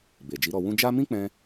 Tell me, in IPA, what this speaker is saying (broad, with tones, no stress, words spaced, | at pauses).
be˨ d͡ʒi˨˦ɾɔ˧wũ˦ d͡ʒa˦ mĩ˦k͡pɛ̃˧